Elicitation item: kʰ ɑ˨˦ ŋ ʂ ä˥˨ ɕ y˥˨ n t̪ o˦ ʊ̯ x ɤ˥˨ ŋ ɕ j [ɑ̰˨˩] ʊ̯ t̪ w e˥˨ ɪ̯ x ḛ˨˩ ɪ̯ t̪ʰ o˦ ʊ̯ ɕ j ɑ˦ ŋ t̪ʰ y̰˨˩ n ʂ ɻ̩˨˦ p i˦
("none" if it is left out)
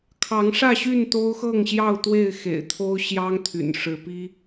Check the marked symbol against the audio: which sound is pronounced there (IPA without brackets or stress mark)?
ɑ˥˨